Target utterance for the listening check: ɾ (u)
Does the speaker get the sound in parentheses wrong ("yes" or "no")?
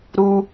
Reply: no